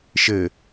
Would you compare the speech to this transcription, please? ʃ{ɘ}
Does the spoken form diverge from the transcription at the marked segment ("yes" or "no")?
no